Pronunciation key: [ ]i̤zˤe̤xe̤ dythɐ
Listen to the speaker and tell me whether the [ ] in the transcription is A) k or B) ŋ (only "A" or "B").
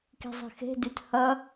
A